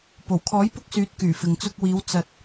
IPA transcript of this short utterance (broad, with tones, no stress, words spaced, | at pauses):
po˨˩wkʰɔː˨˥jpʊ˧k̚ syː˨˥t̚kyː˨˩ fɪ˨ŋt͡sʊ˧k̚wiː˨˧w t͡sɐ˨t̚